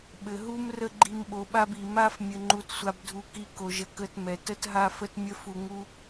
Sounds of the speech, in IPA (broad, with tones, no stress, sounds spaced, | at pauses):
ɓ ɘ˨ ɦ u˦ m r ə˦ ɡ͡ǃ i˧ m ɓ o˨ ɓ a˧ b i˨ m a˦ f mʲ ɘ˧ ŋ͡ǃ u˧ t sʷ a˧ b dʱ u˧ k i˦ k o˧ ʒ ə˦˨ k ə˧ t m ɛ˨ t ə˦ t ɦ a˦ f ə˦ t mʲ ə˦ f u˧ ŋ u˦